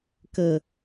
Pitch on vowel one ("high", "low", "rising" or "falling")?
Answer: low